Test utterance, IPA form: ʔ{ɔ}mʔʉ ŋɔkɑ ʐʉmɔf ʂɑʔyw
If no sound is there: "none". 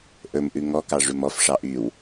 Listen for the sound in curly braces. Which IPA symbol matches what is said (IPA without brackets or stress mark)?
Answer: ɵ